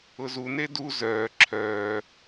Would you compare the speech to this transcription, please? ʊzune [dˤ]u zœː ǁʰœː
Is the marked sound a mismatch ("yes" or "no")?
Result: yes